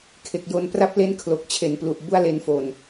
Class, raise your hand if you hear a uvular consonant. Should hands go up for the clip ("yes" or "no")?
no